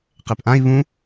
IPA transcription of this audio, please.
qepʔãi̯ βũ

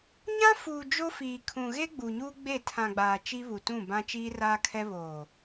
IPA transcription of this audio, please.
ɲã˦fuː˨ d͡ʒo˦fiː˨ kʰũ˨ɣe˦ ɡ͡bu˨ɲuː˦ ɡ͡be˦˨ tʰã˨ɡ͡baː˨ t͡ʃi˦βu˨tũ˦˨ bã˦t͡ʃiː˦raː˦kʰɛ˦ βoː˨

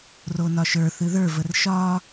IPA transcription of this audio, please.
ronɒʃə˞ θɨðə˞vər ʃɒ

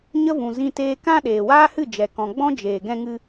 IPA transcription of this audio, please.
ɲə˦vũ˨ zĩ˧teː˧kã˦ ɗeː˨waː˦hɨ˦˨ d͡ʒɛ˨kɔ̃˨ɡ͡bɔ̃˦ d͡ʒeː˨ɡɛ̃˧ŋɨ˧

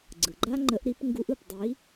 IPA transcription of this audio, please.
ɡ͡ǀɯ˩ɡ͡ǃa˦ ŋ͡ǃə˨˦ʔɾi˨˦p ŋɡu˨˦ʔɯ˧˩p dˤi˨˦

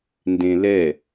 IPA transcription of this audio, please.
ndẽlɛ

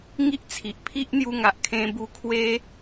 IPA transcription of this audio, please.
ŋi˦ʔt͡sʰi˨ʔpʰi˦ʔ n̪ju˧ŋa˨ʔ kʰẽ˧bu˧kʰwe˦

